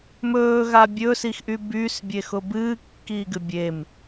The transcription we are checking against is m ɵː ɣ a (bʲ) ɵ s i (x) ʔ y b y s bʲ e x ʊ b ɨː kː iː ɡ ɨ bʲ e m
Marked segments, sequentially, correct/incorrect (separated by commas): correct, correct